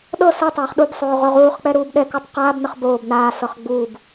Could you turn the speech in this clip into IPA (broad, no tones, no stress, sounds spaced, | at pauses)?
ɗ ɤ s ɤ tˤ aː χ ɗ u b sˤ oː ʁ o ʁ uː χ k͡p ɛ ɾ uː b ɗ ɛ k u tˤ q aː b n ə χ b oː b n aː s ɤ χ ɡ͡b uː b